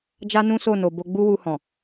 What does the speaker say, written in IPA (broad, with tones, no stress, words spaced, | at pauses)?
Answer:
d͡ʒa˦nũ˦ so˦˨no˨ bo˧ ɡ͡bu˦wu˧hɔ̃˨